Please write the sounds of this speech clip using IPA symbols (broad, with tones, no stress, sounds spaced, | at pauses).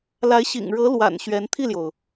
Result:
l a˧˥ ɪ̯ ɕ ḭ˨˩ ŋ ɻ ɤ˧˥ l w a̰˨˩ n ɕ ɥ ɛ˧˥ n t̪ʰ i˥˩ l j o˩ ʊ̯